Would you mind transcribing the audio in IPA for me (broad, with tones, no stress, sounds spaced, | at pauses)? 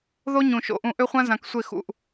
ð o˥ ɲ ũ˨ ʃ o̰˦˨ ʔ ũ˦˨ ʔ ø˥ χʷ ã˥ z ã˨ k sʷ e˦˨ x ṵ˨ ʔ